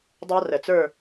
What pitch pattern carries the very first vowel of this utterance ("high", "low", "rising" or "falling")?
high